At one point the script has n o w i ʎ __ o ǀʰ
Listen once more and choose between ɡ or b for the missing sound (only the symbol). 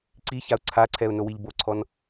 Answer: b